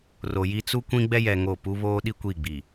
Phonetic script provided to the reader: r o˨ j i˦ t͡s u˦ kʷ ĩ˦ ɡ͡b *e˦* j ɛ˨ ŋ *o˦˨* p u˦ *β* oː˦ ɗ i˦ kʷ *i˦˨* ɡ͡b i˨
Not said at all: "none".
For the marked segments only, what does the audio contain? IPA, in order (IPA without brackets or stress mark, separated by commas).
ɛ˦, o˦˨, β, i˦˨